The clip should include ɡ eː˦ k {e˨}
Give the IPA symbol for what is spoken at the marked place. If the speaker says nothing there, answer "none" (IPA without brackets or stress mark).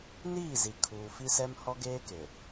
e˨